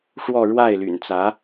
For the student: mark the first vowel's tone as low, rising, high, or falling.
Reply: falling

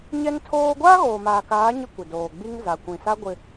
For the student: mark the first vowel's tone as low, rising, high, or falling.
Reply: high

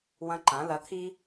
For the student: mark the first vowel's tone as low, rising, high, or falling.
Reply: high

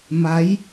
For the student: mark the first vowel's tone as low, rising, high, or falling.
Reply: rising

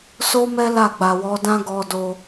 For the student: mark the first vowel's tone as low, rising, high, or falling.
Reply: high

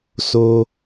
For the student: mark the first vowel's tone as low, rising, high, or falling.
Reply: low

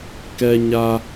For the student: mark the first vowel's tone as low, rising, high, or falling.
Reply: high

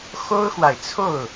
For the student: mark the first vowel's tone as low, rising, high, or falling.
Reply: high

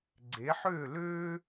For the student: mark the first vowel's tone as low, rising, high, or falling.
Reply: rising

